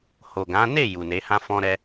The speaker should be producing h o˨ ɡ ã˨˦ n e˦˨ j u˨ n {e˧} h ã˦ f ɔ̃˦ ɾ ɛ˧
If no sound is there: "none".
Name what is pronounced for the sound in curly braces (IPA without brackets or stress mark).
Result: e˨˦